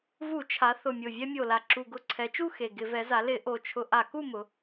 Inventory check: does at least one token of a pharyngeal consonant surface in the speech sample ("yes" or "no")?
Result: no